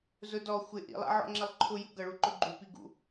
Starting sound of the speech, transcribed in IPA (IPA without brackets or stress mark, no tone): z